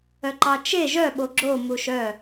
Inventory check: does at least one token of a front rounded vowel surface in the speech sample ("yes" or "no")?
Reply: yes